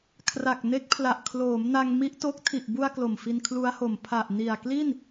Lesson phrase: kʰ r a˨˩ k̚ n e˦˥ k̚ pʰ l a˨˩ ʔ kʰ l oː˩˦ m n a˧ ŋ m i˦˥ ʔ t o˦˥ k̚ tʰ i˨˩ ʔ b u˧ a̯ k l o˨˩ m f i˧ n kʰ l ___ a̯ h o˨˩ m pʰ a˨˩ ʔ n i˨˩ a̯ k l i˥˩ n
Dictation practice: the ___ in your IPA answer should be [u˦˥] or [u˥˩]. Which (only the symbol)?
u˦˥